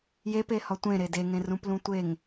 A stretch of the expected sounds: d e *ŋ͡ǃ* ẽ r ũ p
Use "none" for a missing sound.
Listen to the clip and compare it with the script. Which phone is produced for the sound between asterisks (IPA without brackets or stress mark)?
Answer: ŋ